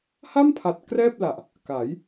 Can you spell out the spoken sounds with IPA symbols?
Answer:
h a˥˩ m pʰ a˨˩ t̚ k r ɛː˥˩ p̚ l a˨˩ ʔ | k a˩˦ j

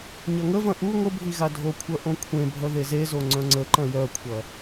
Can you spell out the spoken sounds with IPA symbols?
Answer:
ɲ ɐ ŋ ə v ɐ̃ ʔ u ŋʷ ə bʱ i ɣ a dʱ o kʷʰ œ ʔ õ kʷʰ ẽ bʱ œ ð e z e z o ŋ͡ǀ œ̃ ŋ͡ǀ ə ǃ ɐ̃ j œ kʷʰ ɐ

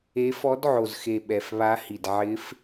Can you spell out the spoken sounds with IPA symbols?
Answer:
e˧˥ f ɔ˧˥ d ʕ o˨˩ z x e˨˩ ɓ ɛ˨˩ f β a˧˥ h i˨˩ d ʕ ɪ˧˥ f

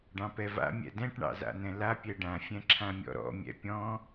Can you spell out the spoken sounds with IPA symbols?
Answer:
ɖ ɑ̃ p ɛ v a̰ mʲ ɛ̰ d ɛ̃ ʈ ɳ ɑ̰ z a̰ n ɛ̃ l a pʲ ɛ ɖ ã fʲ ɛ̃ ǁʰ ã mʲ ɔ̰ ɾ ɔ̰ mʲ ɛ̰ pʲ ɔ̃

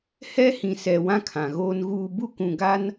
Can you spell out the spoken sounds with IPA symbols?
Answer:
h ɛ˦ h ĩ˨ s ɛ˨ w ã˦ kʰ ã˨ ɣ oː˦ n ɣ uː˦ b u˦ k ũ˨ ɡ a˦ n

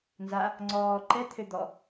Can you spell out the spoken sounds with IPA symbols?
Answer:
n z a | ŋ͡ǀ ɔː ǃ ɛ t̪ʰ ø d̪ ɔ

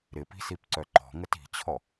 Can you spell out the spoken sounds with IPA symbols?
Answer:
ɾ ɪ p i̤ s i p ǀ œ ǃ ɔ̤ ŋ ə t i̤ t͡ɕʰ ɔ

